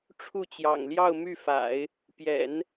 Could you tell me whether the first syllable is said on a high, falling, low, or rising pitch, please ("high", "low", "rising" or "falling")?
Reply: falling